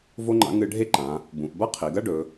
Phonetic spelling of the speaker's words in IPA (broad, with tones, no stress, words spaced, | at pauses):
vo˥ŋ͡ǃa̰˧˥ ŋɨ˧ ɖʱe˥ǃã˩˧ | bũ˩˧ʔbɐ˥ qʰi˩˧ɡɐ˥ ɖɵ˩˧